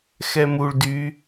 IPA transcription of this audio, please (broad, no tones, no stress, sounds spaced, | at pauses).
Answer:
x ɛ m u ɭ d y